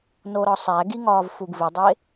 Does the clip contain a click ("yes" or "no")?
no